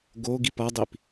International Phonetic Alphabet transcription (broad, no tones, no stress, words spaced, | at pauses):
ɡo ɡipʌdˤip